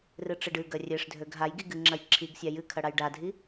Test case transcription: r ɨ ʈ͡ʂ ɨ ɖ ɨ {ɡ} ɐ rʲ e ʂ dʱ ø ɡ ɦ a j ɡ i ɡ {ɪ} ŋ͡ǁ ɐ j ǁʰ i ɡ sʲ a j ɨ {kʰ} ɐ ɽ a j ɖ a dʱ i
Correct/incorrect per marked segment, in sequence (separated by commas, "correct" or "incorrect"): correct, incorrect, correct